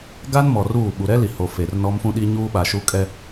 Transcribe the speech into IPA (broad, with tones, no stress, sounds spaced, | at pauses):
ɡ a˦ n m ɔ˨ r uː˦˨ ɓ u˨ ɾ ɛ˦ l i˨ h o˨ f e˨ r n ɔ˦ m f ũ˦ ɗ i˦ ɲ uː˦ ɓ a˨ ʃ u˦ kʼ ɛ˦